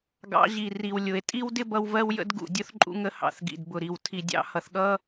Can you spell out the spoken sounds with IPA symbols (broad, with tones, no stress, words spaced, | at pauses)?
ɡɑ̰˨˦ʑi˨ri˨w lʲʊ˨e̯ tʼi˦wdɪ˦bʌ˧w vɜ˦wjə̰˦dɡṵ˨dʲʊ˦θ ǃʼṵ˦ŋə˦hɑ̰˧θɡḭ˨d bʊ˨ɾi˨w tʰi˨dʲɑ̰˧hʌ˨θɠʌ˦